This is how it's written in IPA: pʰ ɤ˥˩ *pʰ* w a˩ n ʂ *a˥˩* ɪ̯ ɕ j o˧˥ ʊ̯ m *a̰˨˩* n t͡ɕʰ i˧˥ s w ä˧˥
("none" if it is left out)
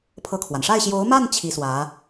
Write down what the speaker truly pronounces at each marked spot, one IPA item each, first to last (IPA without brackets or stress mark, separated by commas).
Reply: kʰ, a˥˩, a˥˩